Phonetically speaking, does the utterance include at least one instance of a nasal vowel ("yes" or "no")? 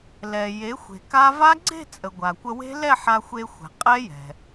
no